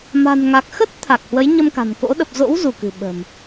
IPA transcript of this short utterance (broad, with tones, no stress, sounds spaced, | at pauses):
m a̤˨˩ n ŋ a˨˩ k̚ x ə˦˥ t̚ t̪ʰ a˨˩ k̚ h w ə˨˦ j ɲ ə˧ m k a̤˨˩ n k o̰˧˥ ɗ ə˨˩ p̚ z o̰˧˥ w z u˧˩ k ɨ̤˨˩ ɓ ə̤˨˩ m